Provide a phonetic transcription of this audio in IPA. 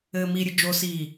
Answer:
ɘː m i ɾʲ ɨ d͡ʒ o s iː

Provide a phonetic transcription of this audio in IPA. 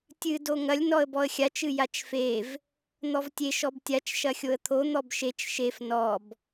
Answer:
tʲ ɨ d o ŋ ɐ lʲ n ɔ ə̯ b ɔ ə̯ xʲ a t͡ʃ ɨ j a t͡ʃ f e v | n̪ ɔ v tʲ e ʃ ɔ b tʲ a t͡ʃ ʃ ɐ xʲ o ə̯ t̪ʰ o n̪ ɔ b ʃ e t͡ʃ ʃ e f n ɔ b

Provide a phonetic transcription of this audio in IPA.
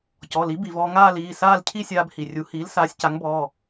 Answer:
c ɔ˩˧˩ l i˩˥ b i˩ v ɔː˧ ŋ aː˥˧ l iː˩˧˩ s aː˥˧ l cʰ i˥˧ sʲ aː˧ b h i˩ rʲ u˩˥ h iː˩˥ l s aː˩˥ sʲ c a˩˥ ŋ b ɔː˩˧˩

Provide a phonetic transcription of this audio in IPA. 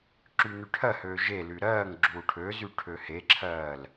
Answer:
ǁ y n y ʈʰ ɜ h øː ʒ e l y ɾ ɜː ŋ ɡ͡ǁ uː ʈʰ ø z y ʈʰ ø h e ǁʰ ɜː l

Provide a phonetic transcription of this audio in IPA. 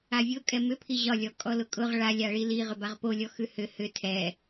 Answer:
a vʲ ʊ kʼ ɛ m ʏ pʰ i ʑ ɒ lʲ ɔ kʼ ɔ l ʊ kʼ ʊ ʁ ɭ a lʲ a ɭ i l i ʁ ʏ b a ʁ p o lʲ ɔ x ʉ h ʏ h ʏ tʰ ɛ

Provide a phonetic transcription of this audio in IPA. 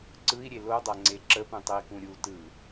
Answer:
ǀ ɯ i̯ ɾʲ e l o dˤ a ŋ͡ǀ e ǁ ə p ũ tˤ ə i̯ k ũ ɾʲ u t ɯ

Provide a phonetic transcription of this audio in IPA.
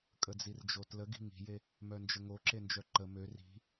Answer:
kʼ ə d͡z i r d͡ʒ o t l ə ɡ i̤ ŋ i̤ j e | m œ n d͡ʒ ə ŋ o ǁ e n d͡ʒ œ ǃ ə m ø r i̤

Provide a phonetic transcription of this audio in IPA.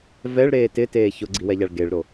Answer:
v ɛ ɭ ɾ eː t ɪ t eː ç ʊ ɡ͡ǀ i w ɛ ʎ a ɭ ɡ e ɭ ɾ o

